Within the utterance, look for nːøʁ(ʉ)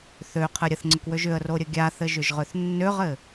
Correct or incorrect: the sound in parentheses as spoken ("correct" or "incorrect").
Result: incorrect